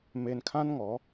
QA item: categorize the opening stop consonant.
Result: aspirated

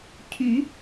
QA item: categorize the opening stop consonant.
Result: aspirated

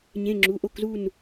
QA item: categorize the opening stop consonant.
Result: click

